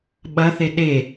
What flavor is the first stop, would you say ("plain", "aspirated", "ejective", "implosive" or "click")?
implosive